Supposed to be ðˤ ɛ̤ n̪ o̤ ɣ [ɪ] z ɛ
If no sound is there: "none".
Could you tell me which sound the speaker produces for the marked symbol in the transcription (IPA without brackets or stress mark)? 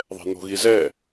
i